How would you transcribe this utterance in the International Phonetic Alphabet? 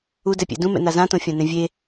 u d ɛ pʲ ḛ d ũ m ɛ̰ n a z ã t õ fʲ ã n ɛ̃ vʲ e

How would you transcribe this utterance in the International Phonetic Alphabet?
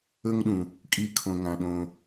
ɵ˦ ŋ ɗ ũ˩ | kʼ i˨ kʰ õ˩ ŋ ã˩ ɗ õ˨

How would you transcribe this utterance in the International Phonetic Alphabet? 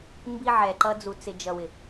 m b i˧ ʕ ɛ˨ ǃ ʌ˧ d͡z u˨ t͡s ɪ˨ d͡ʒ ʌ˨ w ɪ˨

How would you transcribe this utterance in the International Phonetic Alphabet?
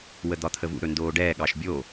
w ə d̪ ɒ t̪ʰ ə v ṵ ɾ ɵ n d oː ɖ ɛː ɠ ɑ ʃ bʲ o

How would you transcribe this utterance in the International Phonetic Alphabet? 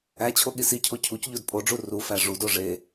æ t͡ɕʰ o ɠ i s i cʰ o cʰ u c ʎ o d pʼ o ɖ͡ʐ u r u f æ ʐ u d o ʐ e

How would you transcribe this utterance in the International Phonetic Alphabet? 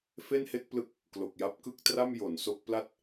f e˥˩ n h e˥˩ k̚ p l ɯ˥˩ k̚ | k l o˨˩ k̚ j a˦˥ p̚ k ɯ˥˩ k̚ t r a˥˩ m j o˩˦ n s o˦˥ k̚ p l a˥˩ t̚

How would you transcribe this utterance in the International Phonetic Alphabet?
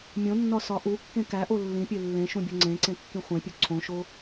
mʲ õ nː ɒ s ɒ ʔ u kː ẽ k æ ʔ o lː ĩ pʲ e lː ẽ ʃ ũ bʲ o ŋ͡ǀ ẽ ǀ ẽ kː ĩ χʷ ẽ pʲ u ǀʰ õ ʃ o

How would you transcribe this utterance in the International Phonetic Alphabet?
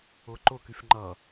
ʊ ǃ ʊ k y f ŋ͡ǃ ʌ

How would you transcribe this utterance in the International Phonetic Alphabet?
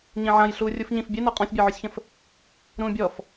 ɲ ĩ ʕ ã j ɬ uː rʲ u f ɲ ĩ f bʲ e n ɔ qʼ ɔ̃ sʲ bʲ e ʕ ɵ sʲ ç ə̃ f | ɾ ũː bʲ ɔ f

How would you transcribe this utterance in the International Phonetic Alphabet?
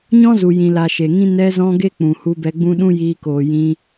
ɲ ɔ̃˦ z u˨ j ĩ˨ l a˨ ʃ e˨ ŋ ĩ˦ n ɛ˧ z ɔ̃˧ ɡ e˦ k͡p ũ˨ h u˧ b ɛ˧ ɡ͡b ũ˦ ɗ ũ˦ j iː˧ k oː˨ j ĩ˧

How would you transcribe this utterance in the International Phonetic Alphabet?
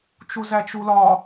t͡ʃ u z æ t͡ʃ u l ɒ

